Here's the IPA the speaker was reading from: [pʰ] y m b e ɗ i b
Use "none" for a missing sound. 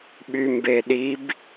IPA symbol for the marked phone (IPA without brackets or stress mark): ɓ